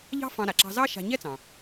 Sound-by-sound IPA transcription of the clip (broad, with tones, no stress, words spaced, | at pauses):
ʎɑ̤˥fɑ̃˧ ɾa˩ǁɑ̤˧zɑ˥ ʃa̤˧ ɲɛ˥t͡sɑ̃˩